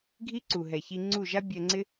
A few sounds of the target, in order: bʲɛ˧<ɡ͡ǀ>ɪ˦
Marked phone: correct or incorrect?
incorrect: ŋ͡ǀ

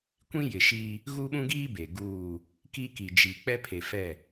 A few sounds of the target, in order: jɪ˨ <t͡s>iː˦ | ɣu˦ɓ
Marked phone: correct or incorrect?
incorrect: ʃ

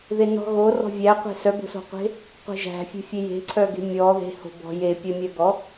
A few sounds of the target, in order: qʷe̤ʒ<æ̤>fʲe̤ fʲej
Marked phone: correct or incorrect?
correct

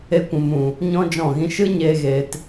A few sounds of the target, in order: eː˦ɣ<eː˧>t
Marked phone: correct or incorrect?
correct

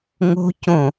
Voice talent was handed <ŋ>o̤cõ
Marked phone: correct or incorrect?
correct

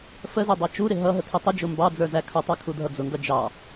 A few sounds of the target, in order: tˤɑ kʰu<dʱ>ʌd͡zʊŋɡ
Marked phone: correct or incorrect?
correct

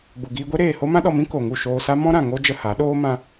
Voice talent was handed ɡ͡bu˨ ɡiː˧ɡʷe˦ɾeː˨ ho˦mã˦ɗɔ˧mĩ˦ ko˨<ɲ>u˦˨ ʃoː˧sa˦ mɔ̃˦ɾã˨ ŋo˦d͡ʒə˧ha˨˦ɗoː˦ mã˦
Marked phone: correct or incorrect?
incorrect: ŋ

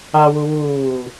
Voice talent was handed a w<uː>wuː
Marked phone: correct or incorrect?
incorrect: u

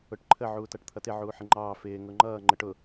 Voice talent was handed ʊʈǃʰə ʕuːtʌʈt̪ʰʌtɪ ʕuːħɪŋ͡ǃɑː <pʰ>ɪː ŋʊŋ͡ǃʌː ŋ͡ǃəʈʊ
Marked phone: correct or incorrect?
incorrect: f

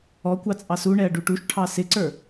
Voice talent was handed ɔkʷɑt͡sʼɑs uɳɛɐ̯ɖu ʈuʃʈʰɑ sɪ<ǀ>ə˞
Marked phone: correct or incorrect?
correct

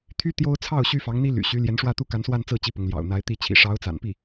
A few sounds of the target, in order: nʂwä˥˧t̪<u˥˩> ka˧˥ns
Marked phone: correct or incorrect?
correct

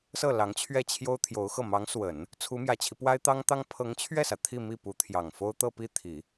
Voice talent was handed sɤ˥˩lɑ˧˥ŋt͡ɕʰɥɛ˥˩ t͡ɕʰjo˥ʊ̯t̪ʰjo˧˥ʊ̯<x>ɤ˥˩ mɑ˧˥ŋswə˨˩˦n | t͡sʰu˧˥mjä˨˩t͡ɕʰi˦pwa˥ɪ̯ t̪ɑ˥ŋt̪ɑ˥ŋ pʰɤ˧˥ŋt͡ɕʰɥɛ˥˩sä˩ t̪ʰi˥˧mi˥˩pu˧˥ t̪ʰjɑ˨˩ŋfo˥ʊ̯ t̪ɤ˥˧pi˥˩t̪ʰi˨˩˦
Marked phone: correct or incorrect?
correct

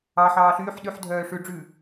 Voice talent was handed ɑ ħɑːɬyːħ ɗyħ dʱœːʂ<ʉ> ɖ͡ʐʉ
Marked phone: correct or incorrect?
correct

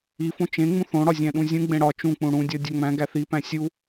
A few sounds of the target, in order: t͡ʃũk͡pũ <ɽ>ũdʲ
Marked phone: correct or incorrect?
correct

